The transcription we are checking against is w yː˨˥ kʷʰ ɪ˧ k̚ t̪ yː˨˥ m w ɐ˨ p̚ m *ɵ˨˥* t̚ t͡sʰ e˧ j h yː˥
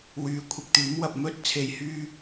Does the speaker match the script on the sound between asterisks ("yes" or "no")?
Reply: no